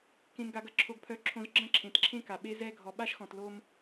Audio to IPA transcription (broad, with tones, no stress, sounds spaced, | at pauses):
k ẽ˨ n ɡ a˨ ɡ ɐ˨ ǁʰ o˨ ɡ pʰ œ˨ ǁʰ õ˨ z ɡ͡ǁ ɐ̃˦ ǁʰ ẽ˨ t ǁʰ ẽ˦ k a˨ ɓ e˦ z ɛ˦ ɡʱ ɔ˨ ɓ a˦ ʃ x ɔ̃˨ t l o˦ m